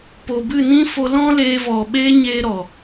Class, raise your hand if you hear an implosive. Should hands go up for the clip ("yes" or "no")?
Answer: yes